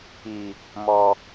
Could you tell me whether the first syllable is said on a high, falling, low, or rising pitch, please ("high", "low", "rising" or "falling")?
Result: low